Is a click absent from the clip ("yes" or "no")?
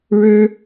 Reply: yes